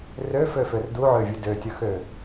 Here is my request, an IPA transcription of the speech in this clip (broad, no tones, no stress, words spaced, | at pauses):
røføfør duʕøvʲɯ døtʲɯxø